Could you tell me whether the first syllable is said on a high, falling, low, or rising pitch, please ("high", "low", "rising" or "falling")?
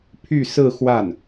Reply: falling